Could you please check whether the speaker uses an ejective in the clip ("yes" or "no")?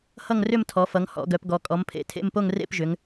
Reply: yes